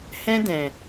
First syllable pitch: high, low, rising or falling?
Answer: high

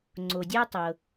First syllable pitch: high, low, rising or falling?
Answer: low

